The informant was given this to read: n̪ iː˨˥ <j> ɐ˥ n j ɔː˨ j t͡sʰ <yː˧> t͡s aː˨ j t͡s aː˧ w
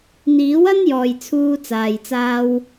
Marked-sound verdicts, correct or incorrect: incorrect, incorrect

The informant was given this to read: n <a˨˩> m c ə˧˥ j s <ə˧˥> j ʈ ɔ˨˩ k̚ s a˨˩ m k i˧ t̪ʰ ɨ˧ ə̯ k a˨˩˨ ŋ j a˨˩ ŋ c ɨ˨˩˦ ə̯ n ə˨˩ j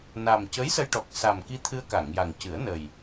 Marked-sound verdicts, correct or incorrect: correct, incorrect

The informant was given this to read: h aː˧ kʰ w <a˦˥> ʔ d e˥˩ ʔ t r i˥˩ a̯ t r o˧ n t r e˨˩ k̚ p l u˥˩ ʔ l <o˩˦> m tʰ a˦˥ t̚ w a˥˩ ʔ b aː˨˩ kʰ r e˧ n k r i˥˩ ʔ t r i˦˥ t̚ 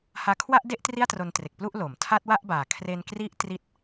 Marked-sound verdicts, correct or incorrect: incorrect, correct

